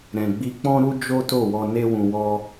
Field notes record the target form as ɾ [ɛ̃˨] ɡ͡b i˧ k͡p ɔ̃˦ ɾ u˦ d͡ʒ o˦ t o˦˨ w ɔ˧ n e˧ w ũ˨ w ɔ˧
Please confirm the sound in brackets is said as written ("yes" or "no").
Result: yes